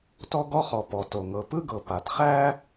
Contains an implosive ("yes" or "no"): no